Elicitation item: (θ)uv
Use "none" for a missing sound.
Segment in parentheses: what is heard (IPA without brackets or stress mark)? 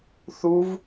θ